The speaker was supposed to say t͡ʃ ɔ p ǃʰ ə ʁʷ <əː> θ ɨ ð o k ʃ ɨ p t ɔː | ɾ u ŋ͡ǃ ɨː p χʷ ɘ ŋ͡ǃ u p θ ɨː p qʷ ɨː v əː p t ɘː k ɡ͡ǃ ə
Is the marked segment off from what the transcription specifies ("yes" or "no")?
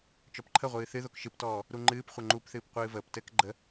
yes